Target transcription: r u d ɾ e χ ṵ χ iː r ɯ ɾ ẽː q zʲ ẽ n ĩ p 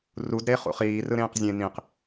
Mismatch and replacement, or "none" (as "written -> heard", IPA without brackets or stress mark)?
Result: p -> q